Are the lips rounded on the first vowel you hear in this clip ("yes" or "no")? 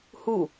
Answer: yes